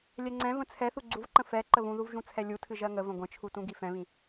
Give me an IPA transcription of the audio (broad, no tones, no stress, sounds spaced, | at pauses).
lʲ ɛ ŋ͡ǀ ɛ̃ v ə̃ t͡sʰ ɛ θ u ɡ͡ǀ u v ǃ ə̃ f ɛ ǃ ə β ũ ð u v ʒ ũ t͡sʰ ɛ lʲ u tʰ ɨ ʒ ɜ ŋ ə v ə̃ ɡʷ ə̃ t͡ʃʰ u t ũ ɡ i f ɛ̃ β ĩ